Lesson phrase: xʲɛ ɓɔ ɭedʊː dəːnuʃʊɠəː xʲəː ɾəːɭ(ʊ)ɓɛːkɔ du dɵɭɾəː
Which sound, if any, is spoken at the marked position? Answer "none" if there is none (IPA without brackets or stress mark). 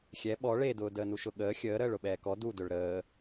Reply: ʊ